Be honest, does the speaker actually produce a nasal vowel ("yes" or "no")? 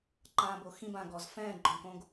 yes